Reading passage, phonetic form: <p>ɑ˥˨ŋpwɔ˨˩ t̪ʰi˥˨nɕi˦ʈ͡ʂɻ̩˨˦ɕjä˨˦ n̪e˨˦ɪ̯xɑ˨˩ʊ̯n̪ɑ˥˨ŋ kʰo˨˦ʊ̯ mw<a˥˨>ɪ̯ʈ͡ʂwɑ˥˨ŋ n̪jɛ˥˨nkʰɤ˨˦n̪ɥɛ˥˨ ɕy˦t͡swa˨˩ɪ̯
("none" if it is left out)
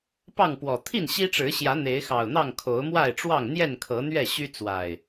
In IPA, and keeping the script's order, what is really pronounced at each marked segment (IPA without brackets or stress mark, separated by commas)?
p, a˥˨